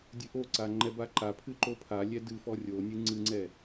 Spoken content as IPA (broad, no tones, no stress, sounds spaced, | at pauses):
dʲ ɨ ʔ o ǀ a ŋ͡ǃ ɛ b a ǃ a pʰ ɨ ǃ o pʰ a lʲ ɛ d ɨ f ɔ rʲ o nʲ ɨ ŋ͡ǀ ɨ ŋ͡ǀ ɛ